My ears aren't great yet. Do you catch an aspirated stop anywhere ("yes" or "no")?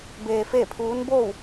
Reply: yes